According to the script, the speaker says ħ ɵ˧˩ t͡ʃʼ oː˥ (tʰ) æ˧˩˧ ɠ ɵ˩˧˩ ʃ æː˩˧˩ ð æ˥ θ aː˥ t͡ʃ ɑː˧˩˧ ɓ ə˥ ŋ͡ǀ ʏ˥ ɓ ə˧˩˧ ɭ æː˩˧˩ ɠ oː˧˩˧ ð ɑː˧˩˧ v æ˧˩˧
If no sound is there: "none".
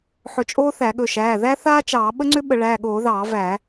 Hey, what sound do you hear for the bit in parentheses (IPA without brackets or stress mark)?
θ